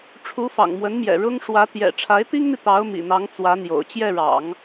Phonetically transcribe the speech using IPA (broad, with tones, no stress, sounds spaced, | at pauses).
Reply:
ʈ͡ʂʰ u˧˥ f ɑ̰˨˩ ŋ m w ə˧˥ n m j ɛ̰˨˩ ɻ ʊ˥ ŋ ʂ w ä˧˥ t̪ j ɛ̰˨˩ ʈ͡ʂʰ a˧˥ ɪ̯ t̪ i˥ ŋ n̪ i˨ t̪ ɑ˧˥ ʊ̯ m ḭ˨˩ n̪ ɑ˧˥ ŋ t͡s w ä˧˥ n̪ j o̰˨˩ ʊ̯ t͡ɕ j ɛ˥˩ ɻ ɑ̰˨˩˦ ŋ